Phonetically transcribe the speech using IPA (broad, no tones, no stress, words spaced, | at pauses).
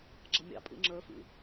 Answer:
ɡ͡ǁʌmʲɑ̰pʼḭ ŋ͡ǁə˞fḭ